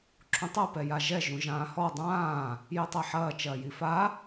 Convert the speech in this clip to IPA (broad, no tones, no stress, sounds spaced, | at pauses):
ǁʰ ũ tˤ ɛ p ɛ j a ʒ ɛ ʒ ũ ʒ ãː h ɔ dˤ ãː | j i tˤ i ħ ɐː t͡ʃ ɐː j i f a